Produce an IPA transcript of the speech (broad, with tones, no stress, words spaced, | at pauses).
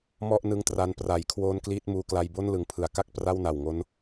mɔ˥˩ʔnɯ˧ŋtra˧n pra˩˦j kʰwoː˦˥nkliː˦˥t̚muː˧kla˧j bo˥˩nlɯ˨˩ŋpʰɯ˩˦a̯ ka˥˩k̚ pra˥˩wna˨˩wŋo˦˥n